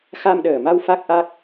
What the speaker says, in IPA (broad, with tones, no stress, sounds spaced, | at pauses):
x a˧ m ɗ əː˨˩ m a˧ w f a˦˥ k̚ ʔ a˦˥ k̚